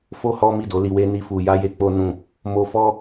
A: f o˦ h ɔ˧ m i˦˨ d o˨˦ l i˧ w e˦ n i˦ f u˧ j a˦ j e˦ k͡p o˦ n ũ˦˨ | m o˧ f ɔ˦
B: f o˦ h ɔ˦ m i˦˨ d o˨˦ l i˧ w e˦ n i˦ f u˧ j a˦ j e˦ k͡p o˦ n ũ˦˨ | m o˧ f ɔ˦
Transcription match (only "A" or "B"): B